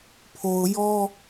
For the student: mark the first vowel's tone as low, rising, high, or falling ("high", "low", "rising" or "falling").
low